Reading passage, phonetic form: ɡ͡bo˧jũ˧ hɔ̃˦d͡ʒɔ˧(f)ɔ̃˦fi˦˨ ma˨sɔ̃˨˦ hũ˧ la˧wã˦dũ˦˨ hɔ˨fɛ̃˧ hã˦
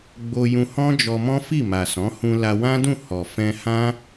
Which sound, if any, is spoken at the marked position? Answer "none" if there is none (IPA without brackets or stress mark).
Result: m